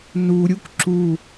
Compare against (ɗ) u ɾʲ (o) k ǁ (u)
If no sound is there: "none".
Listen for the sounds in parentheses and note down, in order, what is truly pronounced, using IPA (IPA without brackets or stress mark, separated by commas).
n, u, u